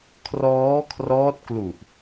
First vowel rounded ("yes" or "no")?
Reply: yes